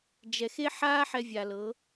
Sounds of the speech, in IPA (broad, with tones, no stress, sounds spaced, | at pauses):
d͡ʒ ɛ˨ x e˦ ħ aː˦ ħ ɛ˧ vʲ a˨ l ɤ˨˦